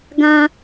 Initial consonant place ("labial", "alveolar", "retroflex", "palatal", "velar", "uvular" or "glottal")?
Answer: velar